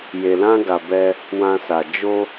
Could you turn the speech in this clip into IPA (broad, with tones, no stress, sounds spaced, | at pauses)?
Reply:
j e˨ l ã˧ ɡ a˨ b ɛ˧ | w ã˧ s a˨ d͡ʒ o˧